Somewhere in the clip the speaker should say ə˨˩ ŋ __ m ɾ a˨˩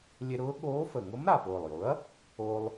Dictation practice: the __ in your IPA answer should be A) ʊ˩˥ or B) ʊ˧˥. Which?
B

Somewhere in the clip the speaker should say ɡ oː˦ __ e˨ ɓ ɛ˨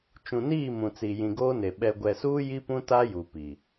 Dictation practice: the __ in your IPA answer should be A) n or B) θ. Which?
A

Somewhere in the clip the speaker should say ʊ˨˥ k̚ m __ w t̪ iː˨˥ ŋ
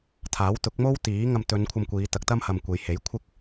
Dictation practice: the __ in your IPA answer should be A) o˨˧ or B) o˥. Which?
B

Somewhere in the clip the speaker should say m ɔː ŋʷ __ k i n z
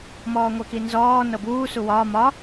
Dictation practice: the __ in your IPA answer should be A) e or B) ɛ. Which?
B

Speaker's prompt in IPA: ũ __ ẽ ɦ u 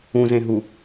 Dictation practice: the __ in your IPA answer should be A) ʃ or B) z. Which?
B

